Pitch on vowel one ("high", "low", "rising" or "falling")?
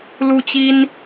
high